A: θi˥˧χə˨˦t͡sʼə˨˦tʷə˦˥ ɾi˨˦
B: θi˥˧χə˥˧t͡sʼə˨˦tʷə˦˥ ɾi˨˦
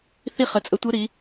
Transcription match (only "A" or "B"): A